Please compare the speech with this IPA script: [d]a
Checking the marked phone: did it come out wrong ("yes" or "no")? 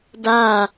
no